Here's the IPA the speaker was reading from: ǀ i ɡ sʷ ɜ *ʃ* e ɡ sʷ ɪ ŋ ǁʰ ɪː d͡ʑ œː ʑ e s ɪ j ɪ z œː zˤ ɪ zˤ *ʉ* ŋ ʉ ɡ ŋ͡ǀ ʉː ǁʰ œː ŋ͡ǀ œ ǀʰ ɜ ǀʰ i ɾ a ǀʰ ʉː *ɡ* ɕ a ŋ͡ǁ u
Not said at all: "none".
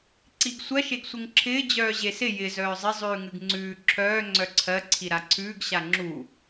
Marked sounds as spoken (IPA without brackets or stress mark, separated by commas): ʃ, ʉː, ɡ